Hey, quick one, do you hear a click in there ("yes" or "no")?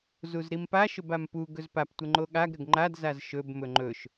yes